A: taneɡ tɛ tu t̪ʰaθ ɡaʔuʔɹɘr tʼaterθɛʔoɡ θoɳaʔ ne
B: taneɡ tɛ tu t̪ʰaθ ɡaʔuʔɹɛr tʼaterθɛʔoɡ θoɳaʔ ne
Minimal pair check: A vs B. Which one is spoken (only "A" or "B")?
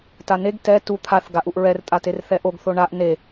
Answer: B